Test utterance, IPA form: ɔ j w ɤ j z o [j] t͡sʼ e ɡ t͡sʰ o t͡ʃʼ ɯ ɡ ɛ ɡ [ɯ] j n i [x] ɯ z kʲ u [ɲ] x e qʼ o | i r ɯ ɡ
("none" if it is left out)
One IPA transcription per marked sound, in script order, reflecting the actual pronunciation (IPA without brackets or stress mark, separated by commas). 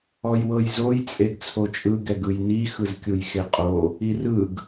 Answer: j, ɯ, x, j